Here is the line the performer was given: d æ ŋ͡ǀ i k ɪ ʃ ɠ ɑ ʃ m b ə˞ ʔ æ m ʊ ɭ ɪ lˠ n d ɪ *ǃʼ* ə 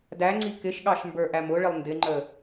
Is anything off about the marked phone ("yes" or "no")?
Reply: yes